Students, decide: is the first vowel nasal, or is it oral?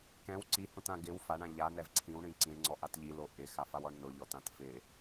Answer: nasal